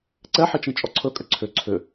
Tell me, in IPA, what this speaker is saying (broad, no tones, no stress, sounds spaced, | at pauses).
ǀ ɛ ħ i t͡ʃ ĩ t͡ʃʼ ɔ ǀʰ ɵ kʼ ʏ ǀʰ ʏ ǀʰ ʏ